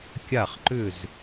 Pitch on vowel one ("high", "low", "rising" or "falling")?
falling